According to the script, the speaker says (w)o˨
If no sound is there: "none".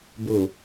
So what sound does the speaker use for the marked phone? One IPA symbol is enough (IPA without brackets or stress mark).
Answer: b